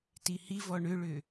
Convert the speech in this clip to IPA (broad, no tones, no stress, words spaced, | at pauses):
tihivɔ ɳʏɭʏ